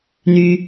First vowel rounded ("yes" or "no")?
yes